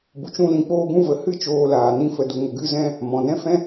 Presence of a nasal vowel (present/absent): present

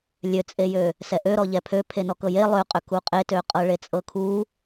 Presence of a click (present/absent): absent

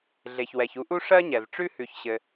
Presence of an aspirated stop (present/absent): absent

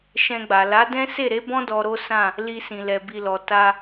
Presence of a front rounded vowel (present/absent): absent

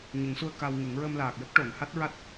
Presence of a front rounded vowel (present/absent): absent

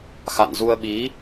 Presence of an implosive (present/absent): present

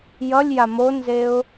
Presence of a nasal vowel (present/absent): absent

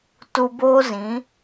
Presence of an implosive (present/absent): absent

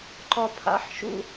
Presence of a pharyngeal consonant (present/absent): present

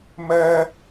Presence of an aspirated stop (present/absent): absent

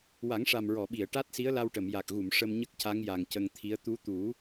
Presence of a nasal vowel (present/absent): absent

